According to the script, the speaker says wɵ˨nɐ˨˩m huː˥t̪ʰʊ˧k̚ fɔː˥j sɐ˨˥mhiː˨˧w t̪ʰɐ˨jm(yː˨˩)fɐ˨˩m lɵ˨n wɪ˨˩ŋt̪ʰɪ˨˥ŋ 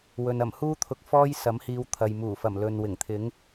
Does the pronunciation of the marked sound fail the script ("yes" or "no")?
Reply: yes